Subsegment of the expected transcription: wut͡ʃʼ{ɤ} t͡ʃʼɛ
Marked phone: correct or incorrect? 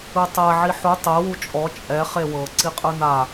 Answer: incorrect